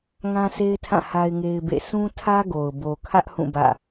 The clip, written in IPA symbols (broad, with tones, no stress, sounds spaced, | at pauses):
ŋ ã˦ sʰ e˦ ɪ̯ tʰ ã˦˨ h a˦ ɪ̯ ŋ e˦ ɪ̯ b ḛ˦˨ s ũ˦ tʰ ä˦ ɡ o˨ ʊ̯ b o˨ kʰ ä˦ ʔ h ũ˦˨ b ä̰˦˨